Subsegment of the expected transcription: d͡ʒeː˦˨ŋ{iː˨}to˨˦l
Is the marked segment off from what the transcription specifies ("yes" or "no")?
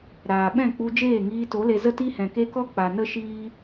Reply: yes